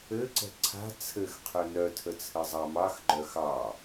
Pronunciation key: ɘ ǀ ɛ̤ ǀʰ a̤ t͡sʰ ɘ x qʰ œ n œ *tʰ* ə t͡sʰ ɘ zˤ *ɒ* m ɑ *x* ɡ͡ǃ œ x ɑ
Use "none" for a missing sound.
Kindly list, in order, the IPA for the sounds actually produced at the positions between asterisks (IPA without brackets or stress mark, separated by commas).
tʰ, ɑ, x